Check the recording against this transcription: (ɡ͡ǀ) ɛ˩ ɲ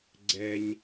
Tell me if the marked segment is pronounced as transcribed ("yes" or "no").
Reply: yes